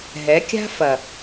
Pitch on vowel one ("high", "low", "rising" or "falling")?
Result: rising